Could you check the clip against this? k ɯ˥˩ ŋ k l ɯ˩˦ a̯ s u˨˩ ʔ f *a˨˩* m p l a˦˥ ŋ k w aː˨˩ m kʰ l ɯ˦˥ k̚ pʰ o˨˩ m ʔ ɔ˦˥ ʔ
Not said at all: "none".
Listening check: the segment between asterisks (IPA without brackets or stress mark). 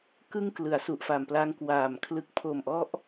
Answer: a˨˩